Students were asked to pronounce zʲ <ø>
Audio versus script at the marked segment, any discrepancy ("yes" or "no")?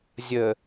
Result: yes